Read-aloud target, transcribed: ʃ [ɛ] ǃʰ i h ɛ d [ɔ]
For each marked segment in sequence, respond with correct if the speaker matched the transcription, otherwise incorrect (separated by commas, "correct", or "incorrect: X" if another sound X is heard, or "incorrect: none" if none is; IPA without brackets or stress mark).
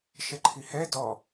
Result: correct, correct